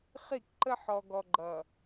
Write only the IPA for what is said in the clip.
χi˦˨kǃə˦ ħɔ˨ɡɔ˨ɡ͡ǃʌ˨

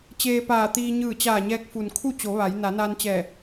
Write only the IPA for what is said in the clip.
t͡ɕeː˧paː˧˩t̪iː˧ ɲɯː˧˩t͡ɕaː˧˩ɲɛː˧k̚fu˩n kʰu˥˨t͡ɕo˩˧ ʋa˩˧j na˩˧naː˧nt͡ɕɛː˧˩

